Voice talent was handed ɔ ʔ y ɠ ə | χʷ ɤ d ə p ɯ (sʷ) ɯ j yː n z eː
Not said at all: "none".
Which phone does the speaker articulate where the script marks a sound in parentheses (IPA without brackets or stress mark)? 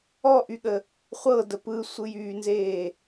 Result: sʷ